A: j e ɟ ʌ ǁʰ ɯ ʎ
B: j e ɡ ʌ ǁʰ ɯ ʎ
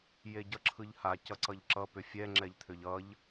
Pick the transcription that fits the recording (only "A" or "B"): A